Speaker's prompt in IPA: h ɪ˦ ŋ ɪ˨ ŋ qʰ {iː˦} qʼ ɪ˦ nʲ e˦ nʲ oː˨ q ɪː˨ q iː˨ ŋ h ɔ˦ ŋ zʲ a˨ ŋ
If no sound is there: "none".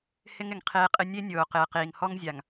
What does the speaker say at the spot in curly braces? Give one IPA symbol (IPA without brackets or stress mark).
eː˦